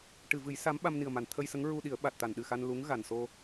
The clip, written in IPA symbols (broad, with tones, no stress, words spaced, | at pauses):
ʈɨ˨˩˨vɨ˨˩˦j sa˧˥mɓa˧mni˨˩ə̯ma˨˩˨n t̪ʰə˧jsə˧˥ŋɹu˧ɗi˨˩˦ə̯ ɓa˨˩t̚ t̪a˨˩˨nɗɨ˨˩xa˧n lu˧˥ŋ ɣa˨˩nso˧